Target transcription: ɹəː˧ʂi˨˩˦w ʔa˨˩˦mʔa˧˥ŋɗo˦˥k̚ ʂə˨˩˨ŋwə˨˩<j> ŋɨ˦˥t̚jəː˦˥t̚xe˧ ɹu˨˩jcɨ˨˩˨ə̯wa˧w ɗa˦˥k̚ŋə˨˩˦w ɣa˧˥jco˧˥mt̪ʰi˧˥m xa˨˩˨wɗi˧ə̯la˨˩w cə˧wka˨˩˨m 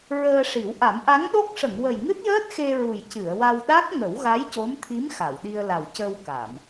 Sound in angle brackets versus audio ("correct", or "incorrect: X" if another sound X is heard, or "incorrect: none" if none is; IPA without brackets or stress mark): correct